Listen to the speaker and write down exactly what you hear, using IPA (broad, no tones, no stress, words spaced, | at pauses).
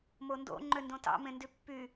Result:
mondo̰ ŋ͡ǃøndõtɑ̰ mẽndypːy